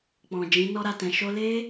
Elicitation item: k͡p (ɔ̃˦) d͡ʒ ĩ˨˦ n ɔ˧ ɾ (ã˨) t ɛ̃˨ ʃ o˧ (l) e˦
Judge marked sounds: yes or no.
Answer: no, no, yes

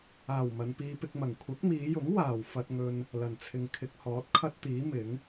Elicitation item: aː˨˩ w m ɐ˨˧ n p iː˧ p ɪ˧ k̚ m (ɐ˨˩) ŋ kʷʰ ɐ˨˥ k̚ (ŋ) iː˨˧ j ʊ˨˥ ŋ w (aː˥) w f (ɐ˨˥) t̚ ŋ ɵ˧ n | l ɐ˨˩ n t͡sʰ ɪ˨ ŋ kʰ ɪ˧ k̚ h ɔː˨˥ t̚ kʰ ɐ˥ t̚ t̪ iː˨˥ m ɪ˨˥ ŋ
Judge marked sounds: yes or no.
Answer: yes, no, no, no

